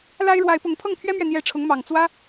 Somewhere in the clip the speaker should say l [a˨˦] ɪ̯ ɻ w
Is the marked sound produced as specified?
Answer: no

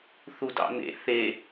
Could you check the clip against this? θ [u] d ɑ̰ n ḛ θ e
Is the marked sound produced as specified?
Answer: yes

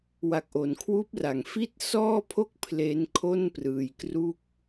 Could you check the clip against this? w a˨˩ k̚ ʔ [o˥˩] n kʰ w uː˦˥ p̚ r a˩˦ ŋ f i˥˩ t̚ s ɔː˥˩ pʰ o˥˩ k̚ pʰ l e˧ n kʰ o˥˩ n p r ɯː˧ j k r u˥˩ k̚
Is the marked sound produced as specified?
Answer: no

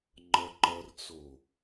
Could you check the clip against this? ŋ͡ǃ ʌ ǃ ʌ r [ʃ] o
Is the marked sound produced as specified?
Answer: no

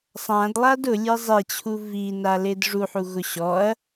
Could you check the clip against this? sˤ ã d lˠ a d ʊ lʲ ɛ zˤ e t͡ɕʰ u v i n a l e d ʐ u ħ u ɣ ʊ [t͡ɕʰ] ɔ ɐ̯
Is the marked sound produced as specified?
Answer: no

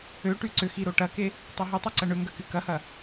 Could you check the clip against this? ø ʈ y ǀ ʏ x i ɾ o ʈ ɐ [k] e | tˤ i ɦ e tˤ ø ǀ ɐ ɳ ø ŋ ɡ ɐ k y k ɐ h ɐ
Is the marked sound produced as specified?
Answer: yes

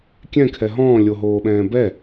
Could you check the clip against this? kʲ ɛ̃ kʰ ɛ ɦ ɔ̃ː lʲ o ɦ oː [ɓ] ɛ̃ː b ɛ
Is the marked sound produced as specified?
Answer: yes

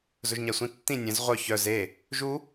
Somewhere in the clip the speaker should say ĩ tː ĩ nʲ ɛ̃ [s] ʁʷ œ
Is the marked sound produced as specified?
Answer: no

